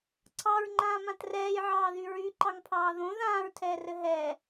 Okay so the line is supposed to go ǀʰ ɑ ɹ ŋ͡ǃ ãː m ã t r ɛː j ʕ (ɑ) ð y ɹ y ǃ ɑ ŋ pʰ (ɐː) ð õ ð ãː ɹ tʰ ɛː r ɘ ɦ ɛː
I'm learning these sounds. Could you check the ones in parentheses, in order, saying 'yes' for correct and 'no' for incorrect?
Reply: no, no

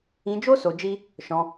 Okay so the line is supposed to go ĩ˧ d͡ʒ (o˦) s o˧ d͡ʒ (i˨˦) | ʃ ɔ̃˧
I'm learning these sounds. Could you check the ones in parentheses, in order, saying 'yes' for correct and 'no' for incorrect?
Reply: yes, no

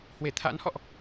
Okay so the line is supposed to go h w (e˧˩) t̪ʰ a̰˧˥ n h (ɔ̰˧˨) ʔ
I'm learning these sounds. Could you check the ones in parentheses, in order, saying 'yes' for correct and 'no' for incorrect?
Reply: yes, yes

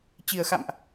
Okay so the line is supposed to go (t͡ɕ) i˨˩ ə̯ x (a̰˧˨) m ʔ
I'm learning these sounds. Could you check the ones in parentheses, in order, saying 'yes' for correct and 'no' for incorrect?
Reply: yes, yes

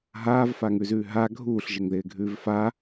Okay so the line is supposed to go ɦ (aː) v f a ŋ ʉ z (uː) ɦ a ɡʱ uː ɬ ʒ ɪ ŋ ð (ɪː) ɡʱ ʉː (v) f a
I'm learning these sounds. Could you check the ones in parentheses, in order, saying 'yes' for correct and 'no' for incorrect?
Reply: yes, no, yes, yes

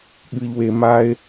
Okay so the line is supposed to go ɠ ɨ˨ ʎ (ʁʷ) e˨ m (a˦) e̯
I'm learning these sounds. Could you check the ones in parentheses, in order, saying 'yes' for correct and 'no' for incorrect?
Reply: no, yes

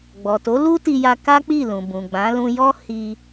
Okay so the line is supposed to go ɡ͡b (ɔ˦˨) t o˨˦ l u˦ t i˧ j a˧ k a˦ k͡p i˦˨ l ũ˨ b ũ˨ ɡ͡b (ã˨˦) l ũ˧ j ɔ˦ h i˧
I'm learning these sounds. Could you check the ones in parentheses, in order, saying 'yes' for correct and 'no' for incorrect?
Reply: no, yes

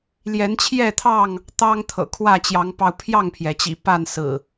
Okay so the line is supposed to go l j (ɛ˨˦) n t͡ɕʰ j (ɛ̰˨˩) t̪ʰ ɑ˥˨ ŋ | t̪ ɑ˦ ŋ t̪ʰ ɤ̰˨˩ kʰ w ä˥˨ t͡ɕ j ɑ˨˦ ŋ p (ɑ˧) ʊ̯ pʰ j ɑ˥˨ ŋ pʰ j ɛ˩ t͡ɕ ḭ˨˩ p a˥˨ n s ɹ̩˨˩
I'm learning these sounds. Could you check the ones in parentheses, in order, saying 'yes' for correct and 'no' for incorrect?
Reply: yes, no, yes

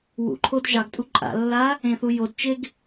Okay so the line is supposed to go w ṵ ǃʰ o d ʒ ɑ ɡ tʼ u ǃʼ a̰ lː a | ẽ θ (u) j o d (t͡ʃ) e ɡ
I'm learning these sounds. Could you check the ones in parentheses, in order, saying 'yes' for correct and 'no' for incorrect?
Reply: yes, yes

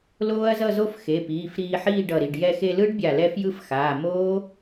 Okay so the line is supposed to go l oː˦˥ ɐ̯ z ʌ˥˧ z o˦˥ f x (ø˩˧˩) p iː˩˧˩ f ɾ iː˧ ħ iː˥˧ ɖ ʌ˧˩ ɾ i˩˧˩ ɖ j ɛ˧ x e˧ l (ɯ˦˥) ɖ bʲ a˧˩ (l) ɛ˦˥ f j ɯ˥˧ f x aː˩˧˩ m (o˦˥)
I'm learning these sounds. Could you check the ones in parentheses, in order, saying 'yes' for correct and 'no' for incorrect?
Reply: no, yes, yes, no

